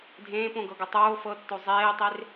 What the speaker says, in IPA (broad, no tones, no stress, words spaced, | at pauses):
dʱẽːp õɡɤɡɤ tˤoː fɤtːo zˤeːtˤer